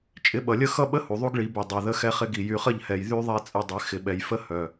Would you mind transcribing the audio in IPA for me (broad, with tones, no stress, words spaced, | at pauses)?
t͡ʃʼɪ˨˦ɓʌ˨lʲə˦ xʌ˦ɓə˦ hu˨ðˤu˦ɡɭi˨˦by˨ dˤœ˨ ðə˦xɛ˦χɪ˦ɡi˨ jy˨χə˦˨ʎhɛ˨j ðy˦ðˤɛ˦t͡sʼə˦˨ dˤɪ˨˦ xɪ˨ɓɛ˨jfə˦ hœ˨